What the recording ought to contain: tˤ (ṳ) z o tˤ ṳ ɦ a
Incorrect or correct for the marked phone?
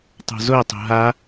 correct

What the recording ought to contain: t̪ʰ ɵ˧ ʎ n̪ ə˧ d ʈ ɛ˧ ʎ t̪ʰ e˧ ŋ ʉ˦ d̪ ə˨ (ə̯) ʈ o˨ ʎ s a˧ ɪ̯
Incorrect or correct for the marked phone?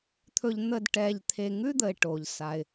incorrect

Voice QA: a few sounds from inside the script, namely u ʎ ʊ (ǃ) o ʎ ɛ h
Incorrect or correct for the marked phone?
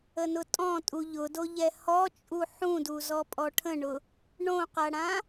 incorrect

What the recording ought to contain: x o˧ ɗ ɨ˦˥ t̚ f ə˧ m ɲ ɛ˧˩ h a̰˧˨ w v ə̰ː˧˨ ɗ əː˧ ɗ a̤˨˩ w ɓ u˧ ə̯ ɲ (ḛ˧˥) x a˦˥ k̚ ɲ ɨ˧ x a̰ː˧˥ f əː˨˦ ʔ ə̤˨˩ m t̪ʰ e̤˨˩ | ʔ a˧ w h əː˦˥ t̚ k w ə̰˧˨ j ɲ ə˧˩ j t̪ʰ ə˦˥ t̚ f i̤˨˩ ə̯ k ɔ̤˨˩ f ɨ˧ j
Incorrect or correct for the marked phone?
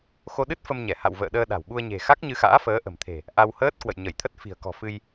incorrect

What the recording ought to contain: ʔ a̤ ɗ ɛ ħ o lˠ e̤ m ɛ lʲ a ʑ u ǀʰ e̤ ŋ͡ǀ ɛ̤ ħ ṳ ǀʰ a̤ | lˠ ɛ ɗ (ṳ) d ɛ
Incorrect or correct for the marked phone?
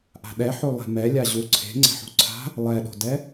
incorrect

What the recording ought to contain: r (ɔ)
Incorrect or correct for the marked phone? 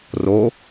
incorrect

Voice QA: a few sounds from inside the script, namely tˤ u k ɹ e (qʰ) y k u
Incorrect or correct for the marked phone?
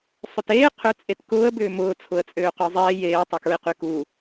incorrect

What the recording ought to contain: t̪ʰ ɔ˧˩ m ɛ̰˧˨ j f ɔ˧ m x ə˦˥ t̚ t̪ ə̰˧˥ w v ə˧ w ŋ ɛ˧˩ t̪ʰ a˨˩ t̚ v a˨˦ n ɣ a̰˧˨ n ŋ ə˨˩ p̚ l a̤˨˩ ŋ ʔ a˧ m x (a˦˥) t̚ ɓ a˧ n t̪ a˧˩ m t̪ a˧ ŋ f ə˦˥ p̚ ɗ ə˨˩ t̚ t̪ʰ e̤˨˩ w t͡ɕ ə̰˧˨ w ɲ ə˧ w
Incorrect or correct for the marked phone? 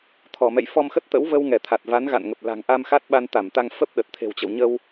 correct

